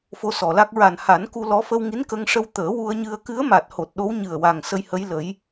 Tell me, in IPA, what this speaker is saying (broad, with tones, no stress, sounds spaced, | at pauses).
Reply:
f o˧ s ɔ˨˩ l a˦˥ k̚ ɹ a˨˩ n h a˨˩˦ n k u˧ l ɔ˧˥ f ə˧ w ŋ i˧˥ n k ə˧ ŋ ʂ ə˧ w t̪ əː˨˩˦ w u˧ ə̯ ɲ ɨ˧ ə̯ k ɨ˧˥ ə̯ m a˨˩ t̚ h o˨˩ t̚ ɗ o˧˥ w ɲ ɨ˨˩ ə̯ w a˨˩ ŋ s ə˧ j h ə˧˥ j l ə˨˩˦ j